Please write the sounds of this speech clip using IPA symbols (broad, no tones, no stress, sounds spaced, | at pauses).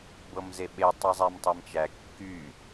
b ɤ m z e ɓ e tˤ ɨ zˤ æ m tˤ ɛ m t͡ʃ æ kː y